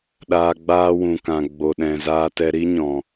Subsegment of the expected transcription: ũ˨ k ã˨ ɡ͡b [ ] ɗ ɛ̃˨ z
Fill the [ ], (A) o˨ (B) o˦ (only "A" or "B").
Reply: A